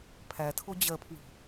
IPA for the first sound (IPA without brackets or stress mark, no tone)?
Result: pʰ